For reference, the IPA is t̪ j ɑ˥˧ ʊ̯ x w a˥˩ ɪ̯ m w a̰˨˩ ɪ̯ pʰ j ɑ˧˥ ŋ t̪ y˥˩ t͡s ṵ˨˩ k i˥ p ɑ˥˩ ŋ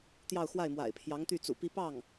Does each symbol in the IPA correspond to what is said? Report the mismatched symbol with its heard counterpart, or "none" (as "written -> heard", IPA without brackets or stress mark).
k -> p